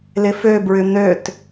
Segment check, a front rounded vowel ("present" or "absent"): present